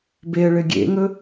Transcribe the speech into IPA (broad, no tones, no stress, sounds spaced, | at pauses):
b e ə̯ ɭ ɘ ɡʲ ḛ ŋ ɵ